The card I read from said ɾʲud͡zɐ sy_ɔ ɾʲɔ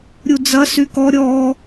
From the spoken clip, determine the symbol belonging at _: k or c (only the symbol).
k